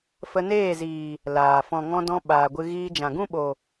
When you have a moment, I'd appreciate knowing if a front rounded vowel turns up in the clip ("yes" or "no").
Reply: no